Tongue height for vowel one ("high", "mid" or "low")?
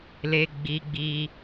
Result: mid